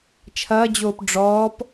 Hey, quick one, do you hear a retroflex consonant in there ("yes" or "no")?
yes